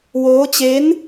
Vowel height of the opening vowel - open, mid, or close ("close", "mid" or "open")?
mid